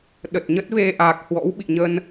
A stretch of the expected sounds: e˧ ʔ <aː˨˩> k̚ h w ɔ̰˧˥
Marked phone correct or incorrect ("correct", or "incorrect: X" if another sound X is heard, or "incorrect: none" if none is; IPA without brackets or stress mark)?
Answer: correct